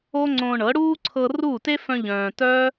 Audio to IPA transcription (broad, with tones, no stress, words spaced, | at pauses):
o˦ŋ͡ǀõ˧ɳɤ˨˦ ɽuː˦ǀʰɤ˧ ruː˦˨te˦fœ̃˧ ʎœ̃ː˨tœ˦